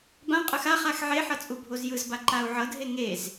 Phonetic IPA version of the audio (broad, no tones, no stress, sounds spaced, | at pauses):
b ã qʼ ɯ x a χ a x ʕ e ħ ʌ t͡sʼ u bʱ o z j ɯ z b a ǃ a u̯ ʕ ʌ dʱ e ŋ e z